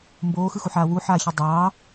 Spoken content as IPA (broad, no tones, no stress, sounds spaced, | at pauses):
m b oː x ɯ x u ħ aː w u ħ aː ç i dˤ ɑː